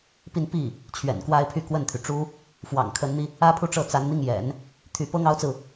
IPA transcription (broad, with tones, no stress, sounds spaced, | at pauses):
p i˥˧ n p i˥˩ | t͡ɕʰ ɥ ɛ̰˨˩ n k w a˥ ɪ̯ pʰ y˥˧ k w ə˥˩ n t̪ʰ y˩ ʈ͡ʂ u˥ | f w ɑ̰˨˩ ŋ kʰ ə˧˥ n n̪ i˧ | ä˥ pʰ u˥˧ ʈ͡ʂ ɤ˥˩ t͡s a˧˥ n n̪ i˥˩ ŋ j ɛ̰˨˩˦ n | t̪ʰ y˧˥ p ɤ˥ ŋ ɑ˥ ʊ̯ t͡s ɹ̩˨